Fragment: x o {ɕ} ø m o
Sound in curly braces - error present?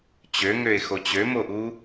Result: yes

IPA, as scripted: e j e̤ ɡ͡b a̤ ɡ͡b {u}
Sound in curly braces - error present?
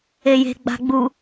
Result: no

